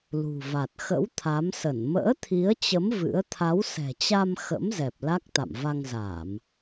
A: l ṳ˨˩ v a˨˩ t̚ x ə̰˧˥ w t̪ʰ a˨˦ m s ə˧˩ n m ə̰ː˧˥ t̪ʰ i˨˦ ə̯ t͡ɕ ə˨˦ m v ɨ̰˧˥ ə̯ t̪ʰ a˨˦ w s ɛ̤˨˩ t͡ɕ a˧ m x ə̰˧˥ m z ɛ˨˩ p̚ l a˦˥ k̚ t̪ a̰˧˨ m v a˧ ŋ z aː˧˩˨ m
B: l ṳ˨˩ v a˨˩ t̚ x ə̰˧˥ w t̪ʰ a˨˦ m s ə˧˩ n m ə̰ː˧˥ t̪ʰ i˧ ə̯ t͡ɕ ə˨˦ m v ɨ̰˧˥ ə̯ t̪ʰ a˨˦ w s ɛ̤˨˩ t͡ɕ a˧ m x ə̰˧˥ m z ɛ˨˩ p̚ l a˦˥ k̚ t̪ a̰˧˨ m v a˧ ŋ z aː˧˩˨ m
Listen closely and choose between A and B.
A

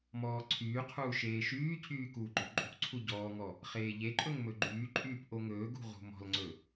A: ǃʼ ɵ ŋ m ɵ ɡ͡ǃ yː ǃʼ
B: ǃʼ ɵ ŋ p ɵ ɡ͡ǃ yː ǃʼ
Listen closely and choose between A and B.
A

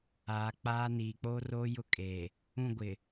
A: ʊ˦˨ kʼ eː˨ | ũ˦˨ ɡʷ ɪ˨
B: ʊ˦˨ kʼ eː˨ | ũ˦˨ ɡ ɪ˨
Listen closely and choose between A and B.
A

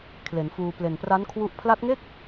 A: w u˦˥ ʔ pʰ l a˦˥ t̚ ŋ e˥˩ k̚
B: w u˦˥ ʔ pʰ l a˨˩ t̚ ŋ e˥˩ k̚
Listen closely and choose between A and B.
A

